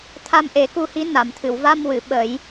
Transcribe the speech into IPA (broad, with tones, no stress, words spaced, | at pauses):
t̪ʰa˧mʔe˨˩˦ku˧hi˧˥ na˨˩˨mt̪ʰɨ˨˩˨w va˧mwɨ˨˩˨ ɓə˨˩˦j